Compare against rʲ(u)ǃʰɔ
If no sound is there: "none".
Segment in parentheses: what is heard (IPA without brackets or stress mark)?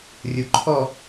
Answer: u